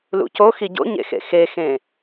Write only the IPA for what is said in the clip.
l ṵ c o x i ɟ o̰ ɲ ḛ x ḛ x e x ẽ

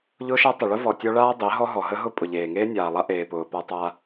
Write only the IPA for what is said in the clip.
ʎ ʊː˦ ʃ a˦ tˤ ə˨ ɭ ʊ˦ v ɔ˨ tʲ ɔ˦ ɭ aː˦ dˤ e˨˦ ɦ ɔ˦ ɦ ɔ˨ ɦ ə˦ ɦ ʊ˦ pʼ ʊ˨ ʎ eː˨ ŋ eː˦ nʲ aː˨ lˠ a˦ ʔ eː˨ p ʊː˨ p a˦ tˤ a˦

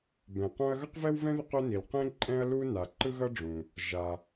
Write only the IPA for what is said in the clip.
b ɛ̃˩ q õ˥ ɐ̯ ɣ ʌ˥ q v ɛ˥ w v ɛ̃˥ ð i˥ q o˥ n i˩ l q ẽ˥ ǃʼ ɛ̃˥ ɐ̯ l u˥ n a˩ ǃ ɯ˥ ɣ ʌ˥ ɖ͡ʐ ũ˩ | ʒ a˩

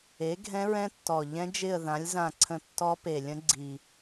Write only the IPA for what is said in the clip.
e˨˥ ɡʱ ɛ̃˦˥ ɹ ɛ̃˦˥ tː ɔ˨˩ ʎ ɛ̃˦˥ d͡ʒ ɪ˦˨ ə̯ ð ã˨˥ lʲ z ã˦˨ ǀʰ ə̃˦˨ tː ɔ˦˥ p e˨˩ lʲ ə̃˦˥ ɡ͡ǀ i˨˩

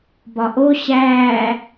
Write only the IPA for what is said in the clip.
b ɒ ʔ o ɕ æː

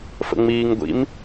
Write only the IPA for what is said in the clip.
f ə̰ ŋ͡m iː ŋ ɡʷ ḭ m

